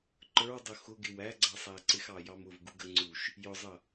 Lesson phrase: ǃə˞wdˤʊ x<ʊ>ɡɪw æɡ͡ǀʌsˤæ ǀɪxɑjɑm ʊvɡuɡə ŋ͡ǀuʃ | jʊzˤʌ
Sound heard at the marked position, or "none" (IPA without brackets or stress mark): ʊ